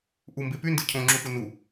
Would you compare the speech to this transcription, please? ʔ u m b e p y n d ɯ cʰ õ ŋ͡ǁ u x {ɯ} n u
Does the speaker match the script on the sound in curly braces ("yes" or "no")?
no